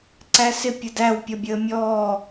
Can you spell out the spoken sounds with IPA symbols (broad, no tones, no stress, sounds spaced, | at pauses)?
ǀ æ s ɪ pʲ ə d æ w pʲ ʌ bʲ əː mʲ ɔː